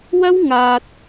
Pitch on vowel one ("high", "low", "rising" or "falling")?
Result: high